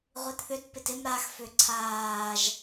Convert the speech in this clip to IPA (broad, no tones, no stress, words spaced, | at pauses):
ʁʷitθøt pɪtɪm ɾax føǀʰaːʒ